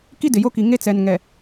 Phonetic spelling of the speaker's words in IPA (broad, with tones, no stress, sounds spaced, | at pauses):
k i˦ d ɪ˨ j o˦ k i˨ ŋ e˦ t͡s ɛ˨ n ŋ ɛ˨